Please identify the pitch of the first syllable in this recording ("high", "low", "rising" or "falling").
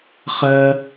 high